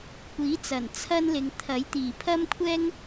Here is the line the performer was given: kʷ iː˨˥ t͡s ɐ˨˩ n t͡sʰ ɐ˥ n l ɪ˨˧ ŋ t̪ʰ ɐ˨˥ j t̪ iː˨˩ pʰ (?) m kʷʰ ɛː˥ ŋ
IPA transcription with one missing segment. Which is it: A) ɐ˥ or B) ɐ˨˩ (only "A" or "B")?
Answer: A